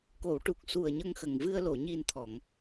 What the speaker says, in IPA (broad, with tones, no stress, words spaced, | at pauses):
ko˨˩˨wʈu˨˩k̚su˨˩ə̯ ɲə˧ŋxə˨˩ŋvɨ˧ə̯lo˨˩˨ ɲi˨˩n t̪ʰɔ˨˩˨ŋ